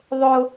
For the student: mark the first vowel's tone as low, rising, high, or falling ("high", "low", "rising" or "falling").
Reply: high